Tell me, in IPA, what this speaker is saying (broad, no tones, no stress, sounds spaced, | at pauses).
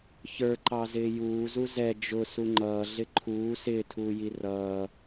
ç ə˞ ǃ ɑ z ɪː j uː z u z ɛ d͡ʒ ʊ s u ŋ͡ǃ ʌː ɮ ɪ ǃʰ uː s ɪː tʰ uː j i r ʌː